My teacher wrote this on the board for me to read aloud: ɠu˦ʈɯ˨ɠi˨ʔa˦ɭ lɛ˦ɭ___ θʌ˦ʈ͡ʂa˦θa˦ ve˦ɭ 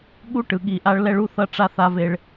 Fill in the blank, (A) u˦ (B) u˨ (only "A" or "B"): A